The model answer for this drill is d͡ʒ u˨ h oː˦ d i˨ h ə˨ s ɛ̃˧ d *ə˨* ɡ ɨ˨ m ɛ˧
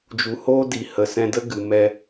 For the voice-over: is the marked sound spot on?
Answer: no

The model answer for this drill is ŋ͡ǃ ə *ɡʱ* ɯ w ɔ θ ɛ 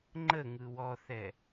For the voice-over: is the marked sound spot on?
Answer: no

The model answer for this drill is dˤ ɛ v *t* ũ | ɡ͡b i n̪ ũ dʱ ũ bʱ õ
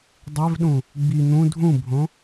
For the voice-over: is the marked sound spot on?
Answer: no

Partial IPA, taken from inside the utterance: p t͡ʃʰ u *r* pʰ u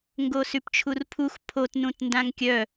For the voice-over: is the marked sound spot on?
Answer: yes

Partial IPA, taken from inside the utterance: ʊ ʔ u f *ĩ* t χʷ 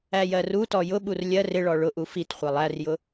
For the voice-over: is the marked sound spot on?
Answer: no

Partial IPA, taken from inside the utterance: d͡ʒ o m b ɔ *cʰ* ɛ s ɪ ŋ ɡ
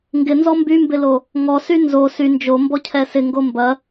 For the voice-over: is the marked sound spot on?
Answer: yes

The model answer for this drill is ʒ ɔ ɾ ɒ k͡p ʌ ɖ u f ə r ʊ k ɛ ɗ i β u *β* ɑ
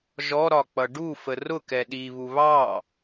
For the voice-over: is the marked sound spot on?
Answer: yes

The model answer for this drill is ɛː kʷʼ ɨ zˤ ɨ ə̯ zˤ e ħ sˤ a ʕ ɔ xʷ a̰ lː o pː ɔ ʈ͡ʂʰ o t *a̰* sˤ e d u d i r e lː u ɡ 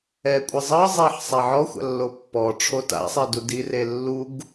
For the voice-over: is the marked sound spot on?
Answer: yes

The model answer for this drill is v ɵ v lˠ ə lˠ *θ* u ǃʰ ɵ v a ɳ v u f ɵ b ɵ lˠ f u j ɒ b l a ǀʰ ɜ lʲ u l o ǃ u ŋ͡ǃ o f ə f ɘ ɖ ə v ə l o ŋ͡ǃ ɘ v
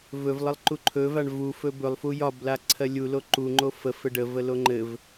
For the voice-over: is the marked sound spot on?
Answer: no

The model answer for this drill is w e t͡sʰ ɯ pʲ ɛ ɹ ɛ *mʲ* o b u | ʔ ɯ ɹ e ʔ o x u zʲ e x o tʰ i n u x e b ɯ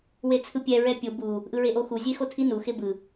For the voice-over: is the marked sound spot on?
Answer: no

